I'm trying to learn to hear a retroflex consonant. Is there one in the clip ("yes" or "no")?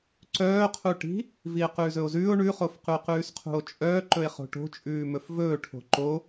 yes